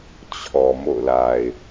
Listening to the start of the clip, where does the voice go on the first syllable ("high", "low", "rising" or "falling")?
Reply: low